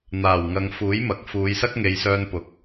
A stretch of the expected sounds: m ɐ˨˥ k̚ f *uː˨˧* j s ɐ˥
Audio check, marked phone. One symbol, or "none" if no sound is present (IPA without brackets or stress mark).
uː˨˧